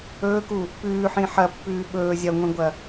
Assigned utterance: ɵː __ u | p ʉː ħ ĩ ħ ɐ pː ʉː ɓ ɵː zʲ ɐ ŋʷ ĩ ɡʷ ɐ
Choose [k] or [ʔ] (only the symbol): k